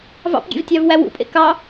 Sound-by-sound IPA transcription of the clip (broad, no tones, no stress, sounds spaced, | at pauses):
v ɑ̰ p ɡʲ ḛ v tʲ ɑ v w æ w ṵ pʼ ḛ k ɑ